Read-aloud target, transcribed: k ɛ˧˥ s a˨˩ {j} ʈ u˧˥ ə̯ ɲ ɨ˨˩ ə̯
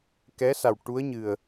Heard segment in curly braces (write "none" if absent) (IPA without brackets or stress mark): w